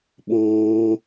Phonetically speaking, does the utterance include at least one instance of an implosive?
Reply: yes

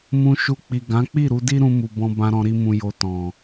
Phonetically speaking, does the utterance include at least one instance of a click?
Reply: no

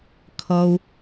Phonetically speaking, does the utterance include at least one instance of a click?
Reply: no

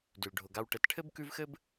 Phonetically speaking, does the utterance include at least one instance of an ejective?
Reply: no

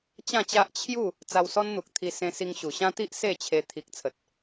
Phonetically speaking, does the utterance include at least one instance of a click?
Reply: no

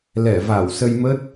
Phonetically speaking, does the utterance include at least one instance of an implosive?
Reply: no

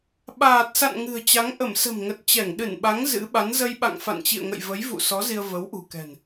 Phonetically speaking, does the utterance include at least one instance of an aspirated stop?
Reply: no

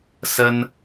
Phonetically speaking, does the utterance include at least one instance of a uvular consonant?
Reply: no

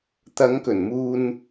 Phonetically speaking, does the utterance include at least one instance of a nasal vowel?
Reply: no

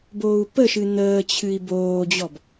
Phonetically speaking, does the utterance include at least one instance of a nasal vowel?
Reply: no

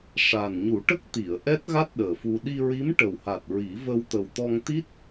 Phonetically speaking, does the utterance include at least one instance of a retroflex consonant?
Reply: yes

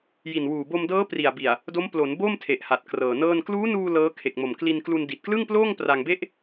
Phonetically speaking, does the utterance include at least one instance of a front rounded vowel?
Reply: no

